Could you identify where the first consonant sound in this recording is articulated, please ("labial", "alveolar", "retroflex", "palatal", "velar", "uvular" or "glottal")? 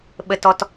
labial